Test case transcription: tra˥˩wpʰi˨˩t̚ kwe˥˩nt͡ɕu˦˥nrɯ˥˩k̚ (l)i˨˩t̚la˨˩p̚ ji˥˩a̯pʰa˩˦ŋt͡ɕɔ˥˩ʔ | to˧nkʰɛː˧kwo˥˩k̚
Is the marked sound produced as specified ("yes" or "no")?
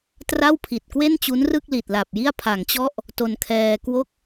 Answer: yes